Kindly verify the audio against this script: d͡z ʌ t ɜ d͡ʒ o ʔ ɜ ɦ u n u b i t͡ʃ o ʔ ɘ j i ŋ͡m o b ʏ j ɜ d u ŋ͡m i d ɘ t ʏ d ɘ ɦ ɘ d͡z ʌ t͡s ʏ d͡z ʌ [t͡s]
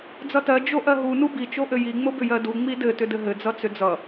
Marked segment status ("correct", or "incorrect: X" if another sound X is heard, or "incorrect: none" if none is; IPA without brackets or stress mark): incorrect: none